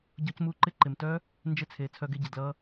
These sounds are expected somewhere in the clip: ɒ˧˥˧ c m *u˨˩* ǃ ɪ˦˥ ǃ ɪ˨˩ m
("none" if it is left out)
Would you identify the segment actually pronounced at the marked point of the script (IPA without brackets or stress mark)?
u˧˥˧